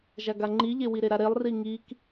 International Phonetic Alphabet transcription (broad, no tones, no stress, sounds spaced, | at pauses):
ʒ a ɡ a ŋ͡ǃ i ʎ e w i ɾ e ɾ a ɾ e lˠ r i ŋ i k